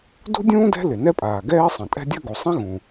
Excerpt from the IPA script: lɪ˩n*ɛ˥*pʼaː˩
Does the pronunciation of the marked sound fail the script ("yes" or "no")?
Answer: no